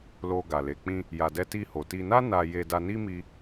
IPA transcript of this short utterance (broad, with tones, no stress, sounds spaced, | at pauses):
l o˧ ɡ a˨ l e˨ k͡p ĩ˧ | j a˨ d ɛ˧ t i˧ h o˨ t i˧ n a˦ n a˧ j e˨ d a˧ n i˦ m i˧